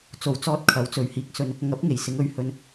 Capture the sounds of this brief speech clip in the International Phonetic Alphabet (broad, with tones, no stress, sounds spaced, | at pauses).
t͡s o˨˩ w t͡s ɔː˧ t̚ kʰ ɐ˨˥ w t͡s ɵ˨˥ ɥ h iː˨˥ k̚ s ɵ˧ n | ŋ ɐ˨˥ p̚ ŋ e˨˩ j s ɪ˨˧ ŋ ɵ˨˧ ɥ h ɵ˧ n